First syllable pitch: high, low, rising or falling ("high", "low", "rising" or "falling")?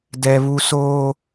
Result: high